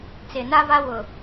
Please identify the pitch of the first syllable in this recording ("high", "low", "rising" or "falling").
low